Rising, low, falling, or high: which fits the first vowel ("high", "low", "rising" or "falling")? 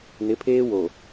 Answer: rising